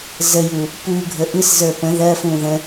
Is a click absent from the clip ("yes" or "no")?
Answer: yes